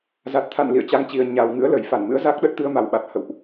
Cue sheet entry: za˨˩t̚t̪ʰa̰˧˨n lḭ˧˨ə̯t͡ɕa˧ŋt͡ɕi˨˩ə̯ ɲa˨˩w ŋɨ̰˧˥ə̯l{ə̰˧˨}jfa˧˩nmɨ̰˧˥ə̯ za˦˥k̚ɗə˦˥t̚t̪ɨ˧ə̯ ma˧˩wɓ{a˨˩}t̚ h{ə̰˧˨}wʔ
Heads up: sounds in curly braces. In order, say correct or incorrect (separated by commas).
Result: incorrect, correct, correct